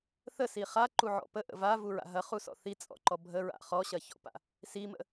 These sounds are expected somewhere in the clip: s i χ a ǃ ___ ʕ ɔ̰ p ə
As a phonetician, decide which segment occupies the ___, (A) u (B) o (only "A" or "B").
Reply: A